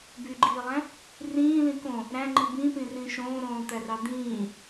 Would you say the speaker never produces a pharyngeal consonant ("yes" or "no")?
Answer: yes